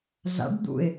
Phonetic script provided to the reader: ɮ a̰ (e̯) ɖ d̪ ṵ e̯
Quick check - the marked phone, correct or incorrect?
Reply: incorrect